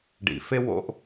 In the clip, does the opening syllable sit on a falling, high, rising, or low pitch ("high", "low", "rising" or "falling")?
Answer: low